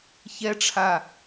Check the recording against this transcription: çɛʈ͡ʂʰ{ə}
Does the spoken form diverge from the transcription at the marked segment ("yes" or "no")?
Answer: yes